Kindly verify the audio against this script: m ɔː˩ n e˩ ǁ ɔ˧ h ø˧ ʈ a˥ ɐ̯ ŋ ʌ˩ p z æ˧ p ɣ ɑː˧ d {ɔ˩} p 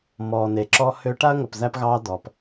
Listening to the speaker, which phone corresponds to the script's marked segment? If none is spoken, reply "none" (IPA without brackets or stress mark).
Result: ɔ˩